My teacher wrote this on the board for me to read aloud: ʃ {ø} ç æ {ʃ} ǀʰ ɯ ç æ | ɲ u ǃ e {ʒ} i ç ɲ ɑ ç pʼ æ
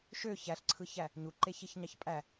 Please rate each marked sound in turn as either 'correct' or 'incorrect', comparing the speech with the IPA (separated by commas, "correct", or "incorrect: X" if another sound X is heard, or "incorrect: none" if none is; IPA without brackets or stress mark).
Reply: correct, incorrect: ɬ, incorrect: ç